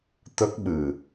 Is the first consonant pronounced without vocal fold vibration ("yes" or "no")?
yes